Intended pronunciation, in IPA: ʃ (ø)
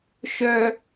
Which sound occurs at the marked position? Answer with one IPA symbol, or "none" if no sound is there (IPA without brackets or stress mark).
œ